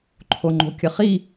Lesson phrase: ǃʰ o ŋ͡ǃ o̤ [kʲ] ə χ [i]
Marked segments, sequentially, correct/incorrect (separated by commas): correct, correct